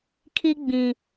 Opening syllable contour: high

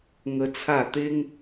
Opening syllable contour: high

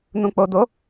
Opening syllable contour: low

